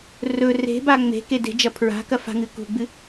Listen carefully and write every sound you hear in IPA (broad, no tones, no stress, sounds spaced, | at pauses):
r ɵ r e̤ b a ŋ͡m e̤ k e d e̤ d͡ʒ ɐ pʰ ɹ a̤ k ɐ f a̤ ŋ ɨ k ṳ ɡ͡b ɨ